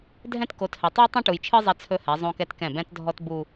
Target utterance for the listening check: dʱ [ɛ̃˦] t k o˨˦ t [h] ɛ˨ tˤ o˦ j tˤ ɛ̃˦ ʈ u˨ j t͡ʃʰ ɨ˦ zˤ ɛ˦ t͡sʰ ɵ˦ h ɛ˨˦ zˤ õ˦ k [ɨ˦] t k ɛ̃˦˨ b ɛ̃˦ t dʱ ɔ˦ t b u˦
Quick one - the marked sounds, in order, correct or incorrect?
correct, correct, incorrect: ɛ˦

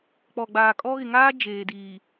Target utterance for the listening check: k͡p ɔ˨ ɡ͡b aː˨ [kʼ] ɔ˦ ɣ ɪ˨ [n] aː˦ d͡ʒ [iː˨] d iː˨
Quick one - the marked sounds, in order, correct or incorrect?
correct, incorrect: ŋ, incorrect: eː˨

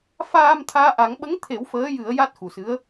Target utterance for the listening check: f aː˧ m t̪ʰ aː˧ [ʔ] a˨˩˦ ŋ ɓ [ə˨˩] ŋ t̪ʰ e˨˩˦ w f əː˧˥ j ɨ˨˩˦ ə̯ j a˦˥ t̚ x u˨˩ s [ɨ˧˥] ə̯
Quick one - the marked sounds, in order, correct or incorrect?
correct, incorrect: ə˧˥, correct

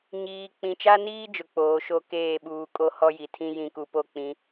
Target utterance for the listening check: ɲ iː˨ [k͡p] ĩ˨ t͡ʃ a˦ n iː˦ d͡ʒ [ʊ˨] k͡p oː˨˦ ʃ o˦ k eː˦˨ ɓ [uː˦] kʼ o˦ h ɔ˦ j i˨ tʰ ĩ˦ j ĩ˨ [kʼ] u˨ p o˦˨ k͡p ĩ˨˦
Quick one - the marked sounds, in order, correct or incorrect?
correct, correct, incorrect: uː˨, incorrect: k

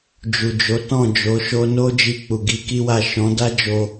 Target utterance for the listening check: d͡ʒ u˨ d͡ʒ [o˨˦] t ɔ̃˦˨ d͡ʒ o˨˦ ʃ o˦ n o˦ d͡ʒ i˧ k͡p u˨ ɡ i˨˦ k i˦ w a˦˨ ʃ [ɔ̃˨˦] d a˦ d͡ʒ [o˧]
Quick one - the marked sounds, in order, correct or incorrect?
correct, correct, correct

